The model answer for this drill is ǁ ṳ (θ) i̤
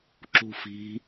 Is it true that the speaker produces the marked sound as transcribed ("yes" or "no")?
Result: no